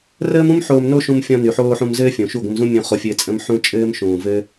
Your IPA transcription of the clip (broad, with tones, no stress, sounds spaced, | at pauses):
r əː˦ m ũ˦ m ħ oː˧ m n o˦ ʃ ũ˧ m fʲ ɔ̃˧ n y˨ ħ oː˧ ħ ũ˧ m z ɘː˦ fʲ õ˨ ʃ u˦˨ ɡʷ ə̃˧ m z ũ˦ mʲ ũ˧ χ o˧ fʲ ɘː˧ t͡sʼ ə̃˧ m ħ ũ˦ t͡ʃʼ ɘː˦ m ʃ ũː˨ v ɘ˦